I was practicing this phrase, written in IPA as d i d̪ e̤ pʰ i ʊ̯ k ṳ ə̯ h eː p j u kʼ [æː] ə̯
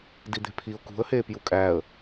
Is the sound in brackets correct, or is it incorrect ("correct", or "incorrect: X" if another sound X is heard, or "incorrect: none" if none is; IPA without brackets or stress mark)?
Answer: correct